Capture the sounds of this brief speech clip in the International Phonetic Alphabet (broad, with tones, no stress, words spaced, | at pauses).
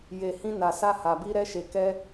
je˨hĩ˧na˨ sa˧ ha˨bi˧ɾɛ˧ ʃe˧ kɛ˦